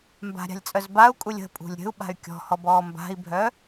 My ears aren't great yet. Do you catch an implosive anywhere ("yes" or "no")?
yes